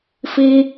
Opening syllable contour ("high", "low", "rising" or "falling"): high